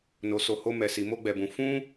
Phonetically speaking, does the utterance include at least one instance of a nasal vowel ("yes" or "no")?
yes